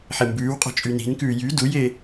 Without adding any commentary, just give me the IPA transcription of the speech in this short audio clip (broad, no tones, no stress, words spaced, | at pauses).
ħembʉːwqʼɔ̤ t͡ʃʼyni̤n kʉːjy duje